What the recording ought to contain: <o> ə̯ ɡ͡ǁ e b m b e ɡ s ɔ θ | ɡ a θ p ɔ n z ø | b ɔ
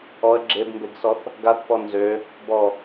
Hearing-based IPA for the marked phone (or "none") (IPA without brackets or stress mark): ɔ